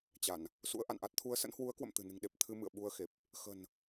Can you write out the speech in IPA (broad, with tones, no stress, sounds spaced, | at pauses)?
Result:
t͡ɕ a˧˩˨ n | s ṵ˧˥ ə̯ ʔ a̰˧˨ n ʔ a˦˥ t̚ t̪ʰ u˨˦ ə̯ s ə̰˧˥ n h w u˨˦ ə̯ k w ə̰˧˨ m t̪ ɨ̤˨˩ n ɨ̤˨˩ ŋ ɗ e˨˩ p̚ t̪ʰ ɨ˧ m ɨ̰˧˨ ə̯ ɓ u˧ ə̯ x e˨˩ p̚ | x ə̤˨˩ n